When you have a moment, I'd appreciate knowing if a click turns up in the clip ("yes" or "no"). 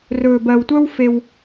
no